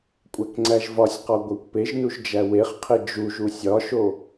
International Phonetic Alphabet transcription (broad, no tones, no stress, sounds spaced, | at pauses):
kʷʼ æ k ŋ͡ǀ æ ʒ v ɒ sʲ q ɒ ɡʷ æ kʷ p e ʒ n u ʒ d͡ʒ æ w e χ qʰ e d͡ʒ u ʒ u sʲ ɒ ʃ o